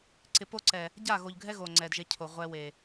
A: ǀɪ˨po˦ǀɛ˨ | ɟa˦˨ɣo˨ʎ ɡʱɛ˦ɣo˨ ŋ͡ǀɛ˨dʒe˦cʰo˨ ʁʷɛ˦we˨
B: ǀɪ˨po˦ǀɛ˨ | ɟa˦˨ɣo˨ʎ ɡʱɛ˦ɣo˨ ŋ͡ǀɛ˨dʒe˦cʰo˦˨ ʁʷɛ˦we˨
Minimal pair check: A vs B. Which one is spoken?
A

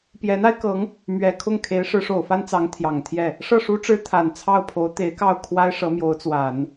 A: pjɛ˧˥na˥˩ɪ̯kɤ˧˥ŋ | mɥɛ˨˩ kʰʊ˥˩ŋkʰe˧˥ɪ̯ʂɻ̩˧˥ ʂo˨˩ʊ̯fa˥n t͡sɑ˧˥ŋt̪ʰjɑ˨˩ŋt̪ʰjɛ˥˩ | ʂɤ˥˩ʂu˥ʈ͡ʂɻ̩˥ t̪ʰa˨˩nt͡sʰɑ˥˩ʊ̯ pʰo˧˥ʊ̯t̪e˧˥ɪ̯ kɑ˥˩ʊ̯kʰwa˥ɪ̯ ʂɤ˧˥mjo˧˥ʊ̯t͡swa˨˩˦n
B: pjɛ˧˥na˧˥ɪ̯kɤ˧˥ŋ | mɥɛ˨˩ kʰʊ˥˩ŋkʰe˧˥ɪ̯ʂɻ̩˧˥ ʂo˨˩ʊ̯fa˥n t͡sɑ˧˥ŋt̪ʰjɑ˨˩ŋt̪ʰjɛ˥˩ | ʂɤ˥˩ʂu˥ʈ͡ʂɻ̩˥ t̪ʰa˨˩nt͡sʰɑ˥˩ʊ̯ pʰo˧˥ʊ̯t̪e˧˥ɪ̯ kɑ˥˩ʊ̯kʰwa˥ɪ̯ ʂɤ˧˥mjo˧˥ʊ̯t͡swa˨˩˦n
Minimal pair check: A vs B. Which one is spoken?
B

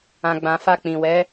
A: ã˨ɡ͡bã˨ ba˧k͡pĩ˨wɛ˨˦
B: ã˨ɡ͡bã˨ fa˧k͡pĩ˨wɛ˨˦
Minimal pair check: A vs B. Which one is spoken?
B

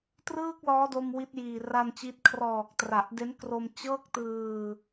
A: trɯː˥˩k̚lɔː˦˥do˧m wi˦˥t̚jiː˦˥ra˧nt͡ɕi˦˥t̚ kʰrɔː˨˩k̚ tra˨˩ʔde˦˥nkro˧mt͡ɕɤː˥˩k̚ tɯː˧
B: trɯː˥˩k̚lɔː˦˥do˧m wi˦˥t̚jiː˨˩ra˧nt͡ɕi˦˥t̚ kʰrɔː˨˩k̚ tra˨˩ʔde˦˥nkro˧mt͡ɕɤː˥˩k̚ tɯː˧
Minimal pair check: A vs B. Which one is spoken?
B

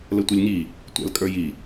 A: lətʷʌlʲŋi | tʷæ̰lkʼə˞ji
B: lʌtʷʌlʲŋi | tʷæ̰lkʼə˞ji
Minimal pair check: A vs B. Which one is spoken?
A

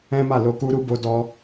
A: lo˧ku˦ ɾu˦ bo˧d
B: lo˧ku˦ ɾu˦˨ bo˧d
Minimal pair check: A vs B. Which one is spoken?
A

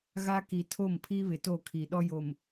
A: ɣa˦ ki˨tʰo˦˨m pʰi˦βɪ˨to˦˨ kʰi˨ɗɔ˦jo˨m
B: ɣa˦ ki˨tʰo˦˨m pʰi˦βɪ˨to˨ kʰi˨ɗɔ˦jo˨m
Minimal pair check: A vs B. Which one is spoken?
A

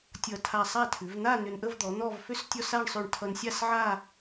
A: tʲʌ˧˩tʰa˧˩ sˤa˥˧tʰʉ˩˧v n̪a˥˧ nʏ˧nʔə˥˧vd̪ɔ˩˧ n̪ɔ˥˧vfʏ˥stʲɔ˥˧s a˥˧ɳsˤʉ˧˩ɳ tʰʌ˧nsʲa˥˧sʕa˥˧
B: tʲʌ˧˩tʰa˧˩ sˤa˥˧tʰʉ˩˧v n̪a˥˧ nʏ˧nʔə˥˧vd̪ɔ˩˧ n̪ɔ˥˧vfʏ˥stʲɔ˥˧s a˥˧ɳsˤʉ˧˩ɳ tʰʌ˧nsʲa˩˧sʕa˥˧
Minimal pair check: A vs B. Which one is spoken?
A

